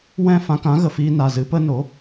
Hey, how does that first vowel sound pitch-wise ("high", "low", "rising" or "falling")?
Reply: falling